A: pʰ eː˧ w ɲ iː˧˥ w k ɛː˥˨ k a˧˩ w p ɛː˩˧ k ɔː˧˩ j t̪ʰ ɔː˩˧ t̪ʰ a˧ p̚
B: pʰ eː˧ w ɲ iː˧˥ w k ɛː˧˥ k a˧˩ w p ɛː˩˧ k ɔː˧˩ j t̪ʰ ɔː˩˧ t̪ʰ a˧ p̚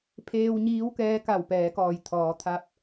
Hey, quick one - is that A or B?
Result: B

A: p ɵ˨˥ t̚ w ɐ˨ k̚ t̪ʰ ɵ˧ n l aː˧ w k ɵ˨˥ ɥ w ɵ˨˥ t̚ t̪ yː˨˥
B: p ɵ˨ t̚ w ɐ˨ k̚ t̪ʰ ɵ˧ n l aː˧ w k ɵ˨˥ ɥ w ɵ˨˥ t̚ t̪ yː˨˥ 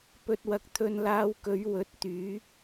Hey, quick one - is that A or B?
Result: B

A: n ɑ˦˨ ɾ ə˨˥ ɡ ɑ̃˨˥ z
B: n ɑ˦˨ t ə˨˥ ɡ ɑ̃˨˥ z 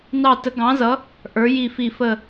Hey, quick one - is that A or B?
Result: B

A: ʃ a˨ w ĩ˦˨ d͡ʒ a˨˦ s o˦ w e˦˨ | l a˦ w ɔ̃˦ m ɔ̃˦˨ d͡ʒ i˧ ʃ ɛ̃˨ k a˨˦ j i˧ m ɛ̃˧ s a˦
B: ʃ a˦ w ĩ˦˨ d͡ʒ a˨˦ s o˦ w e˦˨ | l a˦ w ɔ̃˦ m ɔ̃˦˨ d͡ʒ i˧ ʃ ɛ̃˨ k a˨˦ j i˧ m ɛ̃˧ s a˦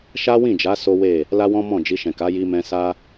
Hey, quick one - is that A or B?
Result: B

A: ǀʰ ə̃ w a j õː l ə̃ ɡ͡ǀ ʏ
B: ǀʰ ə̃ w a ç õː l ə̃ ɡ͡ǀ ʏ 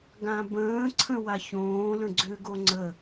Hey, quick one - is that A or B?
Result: B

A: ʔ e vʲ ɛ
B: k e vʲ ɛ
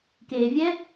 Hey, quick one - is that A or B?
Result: B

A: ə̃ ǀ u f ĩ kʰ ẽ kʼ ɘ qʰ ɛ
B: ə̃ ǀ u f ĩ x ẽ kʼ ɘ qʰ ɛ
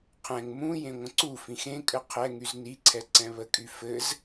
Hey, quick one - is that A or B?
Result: B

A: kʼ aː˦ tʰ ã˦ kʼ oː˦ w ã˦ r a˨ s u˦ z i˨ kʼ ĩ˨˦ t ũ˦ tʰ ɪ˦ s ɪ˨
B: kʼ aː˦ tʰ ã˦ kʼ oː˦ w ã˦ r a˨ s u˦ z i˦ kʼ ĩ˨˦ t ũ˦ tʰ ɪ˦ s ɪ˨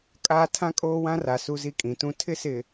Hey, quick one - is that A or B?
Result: B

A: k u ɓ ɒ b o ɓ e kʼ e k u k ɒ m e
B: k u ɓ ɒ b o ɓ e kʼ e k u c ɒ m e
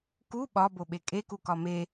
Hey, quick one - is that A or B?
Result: A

